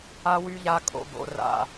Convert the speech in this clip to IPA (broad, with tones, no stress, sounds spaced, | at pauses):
a˦ w y˦ ʎ a˦ kʼ o̰˦ b o̰˦ r a̰˦